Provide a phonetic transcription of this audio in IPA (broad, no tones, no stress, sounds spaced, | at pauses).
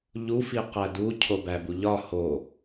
ʎ u f i q æ d u cʰ o b æ b u ʎ ɒ h o